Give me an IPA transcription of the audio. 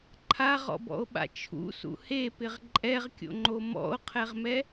ǃʰ a ʁ ɔ̰ b ɔ̰ o̯ ɓ a̰ t͡ʃʰ ṵ s ṵ h e p ɪ ʁ ǃʼ ɛ ʁ kʲ o̰ ŋ͡ǃ o m ɔ̰ o̯ qʰ ɛ ʁ m ɛ

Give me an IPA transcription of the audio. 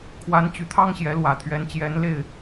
kʰ w a˧˥ n t͡ɕ y˨˩ t̪ʰ ɑ˥ ŋ ɕ j ɛ˧˥ l w ä˨˩ t̪ʰ ɥ ɛ˧˥ n t͡ɕ j ɛ˧˥ n l e˥˩ ɪ̯

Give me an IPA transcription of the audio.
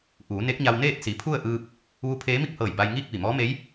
ʔ uː˩˧ n e˧˥ k̚ ɲ a˧ w n eː˥˨ t̚ s i˩˧ pʰ u˥˨ ə̯ ʔ ɯː˧ p̚ | ʋ u˧˥ pʰ eː˧˥ m i˥˨ k̚ h ɤː˧˩ j b a˧ j ŋ iː˥˨ k̚ ʋ i˧˩ m ɔː˧˥ m e˧˥ j

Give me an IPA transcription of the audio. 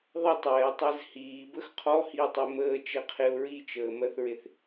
ðˤ ə tˤ ɛː tˤ ɛ z h iː b ə x qʰ ɔ h i ə̯ tˤ e m əː t͡ʃ ɛ qʰ e ʊ̯ ɹ i t͡ʃ əː m ɜ θ ɹ e θ

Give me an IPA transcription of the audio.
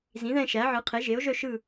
z ĩ˩˥ ð ɛ̃˦˨ ʃ æ˩˥ ʕ ɯ˩˥ qʰ e˩˥ ʒ e˩˥ o̯ ʒ œ˦˨ ʃ ɯ˦˨

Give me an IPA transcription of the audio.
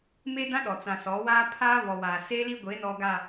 m e˦ d ã˦ ɗ ɔ˨ t͡s ã˨ s ɔ˨˦ w aː˦ pʰ aː˦ β ɔ˨ w aː˨ s eː˦ l i˦ ɡʷ e˨˦ n ɔ˨ ɡ a˨

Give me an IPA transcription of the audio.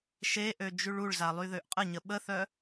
ʃ e ʔ ø d͡ʒ y ɭ u ɭ z a lˠ y ð ø ʔ qʼ ə ɲ ə ɓ ə θ œ

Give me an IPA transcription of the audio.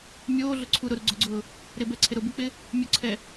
mʲ oː ɮ ʊ ǀʰ u ɾ ʊ ɾ u ɡ͡ǀ ʊ ɡ͡ǀ ʊː | ɾ ɪ b ɛ ǀʰ ɪ ɾ ʊ b ɪ k͡p ɪ | mʲ ʊ ǀʰ ɛ

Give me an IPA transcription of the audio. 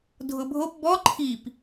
dʱ ʊ bʱ o p b ɔ ǃʰ i p

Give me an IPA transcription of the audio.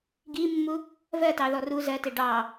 ɡ i mː u | v ɜ t ɑ ð ɔ r u z ɜ t ɪ ɖ ɑ

